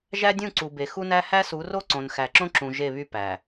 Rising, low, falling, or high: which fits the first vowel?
high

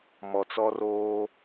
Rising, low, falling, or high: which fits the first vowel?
low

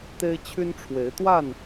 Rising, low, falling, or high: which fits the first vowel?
high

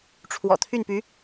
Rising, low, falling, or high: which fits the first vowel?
low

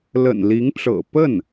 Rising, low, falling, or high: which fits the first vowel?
low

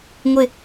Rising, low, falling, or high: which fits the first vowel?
falling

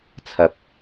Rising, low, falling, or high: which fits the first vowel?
low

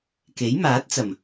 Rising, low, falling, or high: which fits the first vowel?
rising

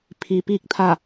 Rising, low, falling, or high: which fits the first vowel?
low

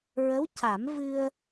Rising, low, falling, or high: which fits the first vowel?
rising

